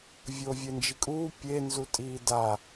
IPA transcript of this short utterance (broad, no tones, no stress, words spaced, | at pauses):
vʲoːvʲend͡ʒikʼuː pʲe nzutʼiːda